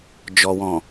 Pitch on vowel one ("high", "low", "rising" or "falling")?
low